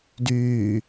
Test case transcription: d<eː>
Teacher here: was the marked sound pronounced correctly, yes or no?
no